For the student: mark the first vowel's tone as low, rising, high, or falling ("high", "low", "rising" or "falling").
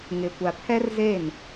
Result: low